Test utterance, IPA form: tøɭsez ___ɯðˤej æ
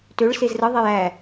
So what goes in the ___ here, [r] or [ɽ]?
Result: r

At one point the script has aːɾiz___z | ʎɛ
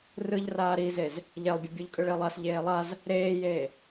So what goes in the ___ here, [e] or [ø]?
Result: e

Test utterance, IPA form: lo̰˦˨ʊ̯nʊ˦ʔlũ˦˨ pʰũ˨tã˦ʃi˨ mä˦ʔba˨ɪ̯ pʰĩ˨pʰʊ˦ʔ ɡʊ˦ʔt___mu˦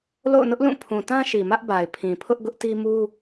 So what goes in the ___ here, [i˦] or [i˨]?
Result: i˦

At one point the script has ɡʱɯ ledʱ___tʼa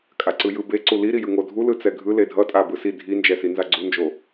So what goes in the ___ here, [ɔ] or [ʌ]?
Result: ʌ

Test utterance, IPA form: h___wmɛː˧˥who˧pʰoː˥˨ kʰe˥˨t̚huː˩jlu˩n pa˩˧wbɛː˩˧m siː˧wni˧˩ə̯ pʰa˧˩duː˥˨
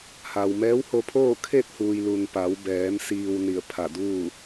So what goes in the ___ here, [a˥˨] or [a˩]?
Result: a˩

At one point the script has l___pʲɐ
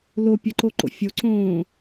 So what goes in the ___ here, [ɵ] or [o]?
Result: o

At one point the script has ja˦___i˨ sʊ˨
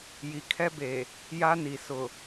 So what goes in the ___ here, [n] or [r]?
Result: n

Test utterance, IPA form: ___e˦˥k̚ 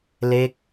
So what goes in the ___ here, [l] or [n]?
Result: l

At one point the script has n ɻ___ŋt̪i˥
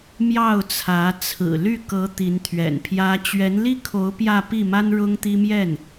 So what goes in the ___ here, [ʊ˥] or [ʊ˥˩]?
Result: ʊ˥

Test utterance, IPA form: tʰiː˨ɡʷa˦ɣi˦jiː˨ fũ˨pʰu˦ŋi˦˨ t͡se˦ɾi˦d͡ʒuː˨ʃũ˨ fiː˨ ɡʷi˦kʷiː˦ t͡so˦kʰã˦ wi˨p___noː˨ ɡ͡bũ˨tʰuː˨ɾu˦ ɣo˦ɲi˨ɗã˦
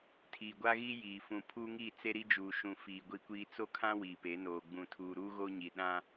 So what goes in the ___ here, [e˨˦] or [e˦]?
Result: e˨˦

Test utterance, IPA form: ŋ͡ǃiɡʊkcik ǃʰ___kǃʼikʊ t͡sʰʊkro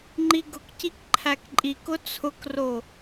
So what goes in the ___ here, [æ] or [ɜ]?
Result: æ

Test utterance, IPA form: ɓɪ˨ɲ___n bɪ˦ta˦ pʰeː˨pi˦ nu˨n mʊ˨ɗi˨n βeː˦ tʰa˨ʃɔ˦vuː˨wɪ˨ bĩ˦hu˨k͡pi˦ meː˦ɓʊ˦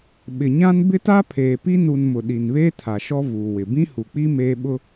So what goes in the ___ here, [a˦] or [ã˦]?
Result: ã˦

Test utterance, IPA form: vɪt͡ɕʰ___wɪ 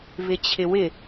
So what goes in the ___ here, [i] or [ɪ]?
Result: ɪ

